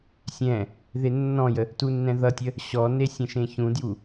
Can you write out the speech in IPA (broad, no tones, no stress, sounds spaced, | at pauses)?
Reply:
sʲ ɛ̃ | ð e nː ɔ̃ j ə | t u nː ɛ̃ ð ʌ tʲ ə | ɕ ɔ n e sʲ ə̃ ʃ ẽ ç ũ d j u